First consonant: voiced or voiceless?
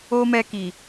voiced